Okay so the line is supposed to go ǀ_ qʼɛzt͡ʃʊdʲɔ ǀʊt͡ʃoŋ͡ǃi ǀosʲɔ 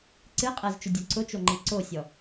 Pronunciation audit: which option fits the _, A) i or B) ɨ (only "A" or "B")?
B